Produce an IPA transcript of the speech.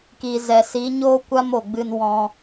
kiː˨zɛ˨si˨˦ɲoː˦ kʷa˦mo˨ɡ͡bɨ˧n wɔ̃˧

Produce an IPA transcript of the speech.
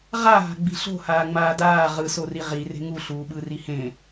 ʁaɦa̤ɡ͡bi̤ ɬo̤haːŋ͡maː daː ʁɯsori ʁire̤ ŋuɬuːɓɯri hẽ

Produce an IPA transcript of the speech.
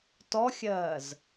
tɔxʲɜːz

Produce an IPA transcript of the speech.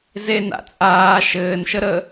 zena̰ t͡sʼaː ʃɘːnʃə ɾə

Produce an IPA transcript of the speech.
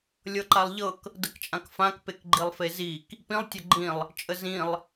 lʲɤǃalˠʎɤk | dəkt͡ʃʼãkfãk pekɡ͡ǃilˠfezik | pĩlˠ tʲɤɡ͡ǃĩlˠ | t͡ʃʼəzĩlˠ

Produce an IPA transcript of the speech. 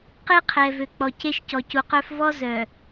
qe˦qʰɛ˨vø˨ k͡pɔ˨ce˦ʃ cɔ˨cu˨qœ˦f vɔ˦zœ˨

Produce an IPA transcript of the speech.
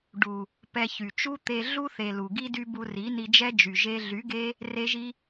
ɖu˨ | pɛ˧çy˨ t͡ʃu˦t̪e˧ ɮu˦θe˨ lu˨ɡi˦ dy˦bu˧ ri˨˦ni˧d͡ʒɛ˦d͡ʒy˨ ʒe˧ɮy˨˦ɡe˦ | re˦ʒi˦

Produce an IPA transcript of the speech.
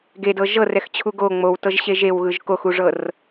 ɡedɤ ʒɤrɛxt͡ɕʰu ɡo ŋ͡mowtɤʒɕeʒ ewɣɯʒ koxuʐɤr

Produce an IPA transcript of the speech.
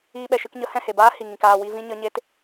iː˧ɓɛ˨ʃɨ˧kɲə˨˦ hɛ̃˦˨he˨baː˦ hi˨ŋĩ˨k aː˨ wi˦vĩ˦ɲə˦ ɲe˧t

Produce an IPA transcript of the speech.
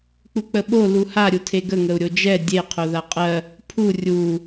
k͡puk͡pəɓo luha ɾʲutʰeɡə ŋəu̯ɾʲod͡ʒɛ dʲe qʰoðaqʼɜ | pʰu rʲu

